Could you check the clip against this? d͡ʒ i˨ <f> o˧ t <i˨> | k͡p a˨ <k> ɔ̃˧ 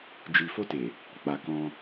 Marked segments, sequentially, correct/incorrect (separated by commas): correct, incorrect, correct